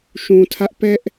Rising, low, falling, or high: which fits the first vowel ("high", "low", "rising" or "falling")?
low